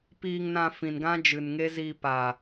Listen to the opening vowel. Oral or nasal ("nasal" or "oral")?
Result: oral